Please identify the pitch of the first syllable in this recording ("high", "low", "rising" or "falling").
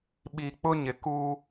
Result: low